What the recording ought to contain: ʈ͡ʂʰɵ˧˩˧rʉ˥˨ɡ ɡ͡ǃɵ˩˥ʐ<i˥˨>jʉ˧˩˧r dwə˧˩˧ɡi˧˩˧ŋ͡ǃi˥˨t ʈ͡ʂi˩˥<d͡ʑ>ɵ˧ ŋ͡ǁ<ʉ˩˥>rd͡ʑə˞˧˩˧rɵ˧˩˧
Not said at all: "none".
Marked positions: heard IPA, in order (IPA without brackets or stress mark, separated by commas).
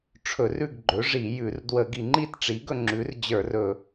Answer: i˧˩˧, ɡ, ʉ˩˥